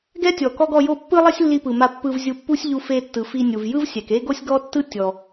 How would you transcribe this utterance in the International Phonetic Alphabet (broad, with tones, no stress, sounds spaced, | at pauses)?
ɡ ɛ˥ tʲ ɔ˩ k ɔ˥ ɡ ɔ˧ j o˥ pː ɯ˥ lˠ ɛ˥ sʲ lː i˧ p ɯ˩ m a˧ pː ɯ˧ v zʲ u˧ pː u˥ sʲ ʎ u˧ f e˧ tː ɯ˩ f i˧ nʲ u˩ v j ɯ˥ v sʲ ɛ˩ k e˥ ɡ o˥ sʲ ɡ ɔ˥ tː ɯ˥ tʲ ɔ˩